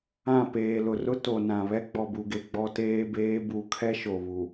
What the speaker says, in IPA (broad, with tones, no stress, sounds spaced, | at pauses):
ã˦˨ p eː˨ l ʊ˨ r ʊ˦ t o˨ n ã˨ β ɛ˦ ɡ͡b ɔ˨ b u˨ ɡ e˨ ɡ͡b ɔ˦ t eː˦ b eː˦ b u˨ kʰ ɛ˦ ʃ o˨ β u˨